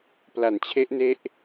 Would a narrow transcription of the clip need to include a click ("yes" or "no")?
no